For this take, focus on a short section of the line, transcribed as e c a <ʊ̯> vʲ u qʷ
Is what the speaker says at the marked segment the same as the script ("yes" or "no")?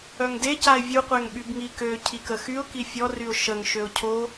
no